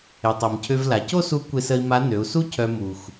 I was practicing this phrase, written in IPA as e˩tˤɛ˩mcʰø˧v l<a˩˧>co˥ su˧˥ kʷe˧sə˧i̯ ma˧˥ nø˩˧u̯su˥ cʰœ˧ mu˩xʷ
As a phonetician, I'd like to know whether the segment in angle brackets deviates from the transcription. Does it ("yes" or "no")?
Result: no